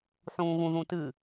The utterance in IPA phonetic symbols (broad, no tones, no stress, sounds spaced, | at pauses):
ħ ũː ɣ ũ ð ũ t ɨ